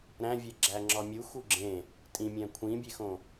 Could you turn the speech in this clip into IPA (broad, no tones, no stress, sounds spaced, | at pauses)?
ɾ æ̃ vʲ e ɡ͡ǁ æ ŋ͡ǁ ɒ mʲ u x u ɡ͡ǁ ẽ | tʼ ĩ mʲ æ̃ kʷʰ ĩ bʲ e x õ